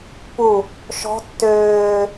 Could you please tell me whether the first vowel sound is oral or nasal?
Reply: oral